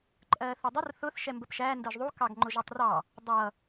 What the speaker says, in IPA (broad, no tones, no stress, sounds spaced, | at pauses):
ǃʼ ɜː θ u dˤ ʊ r θ ʊ θ ʃ ɛ m b ə p ʃ æː n d ɜ ʒ ðˤ u k ɑ ɡ ŋ͡ǃ ʊ ʒ ɛ tˤ r ɑ | dˤ ʌ